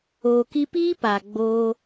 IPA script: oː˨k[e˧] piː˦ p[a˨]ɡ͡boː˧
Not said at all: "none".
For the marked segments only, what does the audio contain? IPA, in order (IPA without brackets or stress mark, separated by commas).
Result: i˧, a˨